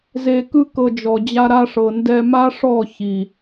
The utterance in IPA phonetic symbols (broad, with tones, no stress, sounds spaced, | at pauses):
z e˧ k ɯ˦ k ɤ˧ d͡ʒ ɔ˨ d͡ʑ a˦ ɾ a˧ ʂ ɤ˨ n d ɛ˧ m a˦ ʂ ɔ˦˨ ç i˨